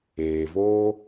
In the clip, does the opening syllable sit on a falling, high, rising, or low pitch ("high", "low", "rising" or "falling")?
low